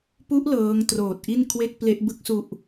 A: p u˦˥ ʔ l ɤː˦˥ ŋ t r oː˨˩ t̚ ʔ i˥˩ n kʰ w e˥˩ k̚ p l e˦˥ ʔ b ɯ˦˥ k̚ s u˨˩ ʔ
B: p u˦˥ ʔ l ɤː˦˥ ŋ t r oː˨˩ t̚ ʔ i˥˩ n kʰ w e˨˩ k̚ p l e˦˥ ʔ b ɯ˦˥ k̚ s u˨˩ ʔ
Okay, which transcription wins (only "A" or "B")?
A